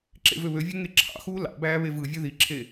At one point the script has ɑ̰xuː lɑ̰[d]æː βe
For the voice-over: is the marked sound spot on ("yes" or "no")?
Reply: no